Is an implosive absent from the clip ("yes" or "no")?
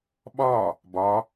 no